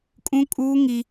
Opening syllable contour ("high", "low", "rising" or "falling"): high